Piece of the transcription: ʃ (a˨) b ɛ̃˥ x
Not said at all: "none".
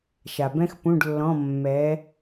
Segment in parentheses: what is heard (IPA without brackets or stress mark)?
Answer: a˨